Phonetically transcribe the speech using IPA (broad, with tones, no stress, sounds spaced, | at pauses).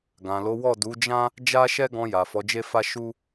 ɡ ã˨ l o˨˦ w ɔ˦˨ d u˨˦ d͡ʒ ã˦ | d͡ʒ a˦ ʃ ɛ˦ ɡ ɔ̃˧ j a˨ f ɔ˨˦ d͡ʒ e˦ f a˦ ʃ u˦